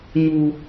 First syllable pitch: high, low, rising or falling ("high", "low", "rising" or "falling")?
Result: low